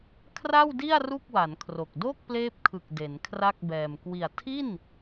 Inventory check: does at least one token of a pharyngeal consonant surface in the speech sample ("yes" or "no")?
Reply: no